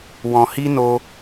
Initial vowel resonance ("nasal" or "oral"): nasal